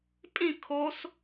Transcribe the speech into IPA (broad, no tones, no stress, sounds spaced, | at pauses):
pʼ ĩ kʰ o s